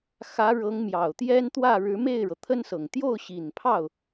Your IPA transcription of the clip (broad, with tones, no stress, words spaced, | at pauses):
xä˧˥ɻɤ˧˥ŋ mjɑ˨˩ʊ̯t̪jɛ˥nt̪wä˥˩ ɻɻ̩˧˥me˥˩ɪ̯ɻɤ˩ t̪ʰə˥nsɤ˨˩ŋ t̪jo˥˩ʊ̯ ɕi˨˩npʰɑ˥˩ʊ̯